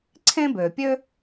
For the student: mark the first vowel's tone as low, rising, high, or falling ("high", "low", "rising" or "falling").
high